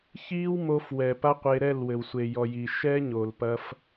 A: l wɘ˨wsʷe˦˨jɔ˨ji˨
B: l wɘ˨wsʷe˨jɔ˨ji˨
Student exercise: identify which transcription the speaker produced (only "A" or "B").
B